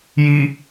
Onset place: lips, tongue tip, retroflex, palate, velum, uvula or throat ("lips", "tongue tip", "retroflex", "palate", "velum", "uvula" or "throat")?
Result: palate